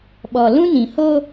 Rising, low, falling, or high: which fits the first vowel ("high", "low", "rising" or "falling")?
low